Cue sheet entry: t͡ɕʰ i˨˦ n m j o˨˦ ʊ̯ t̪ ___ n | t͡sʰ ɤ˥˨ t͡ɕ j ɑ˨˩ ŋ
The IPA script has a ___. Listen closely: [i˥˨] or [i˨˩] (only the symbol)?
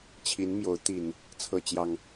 i˨˩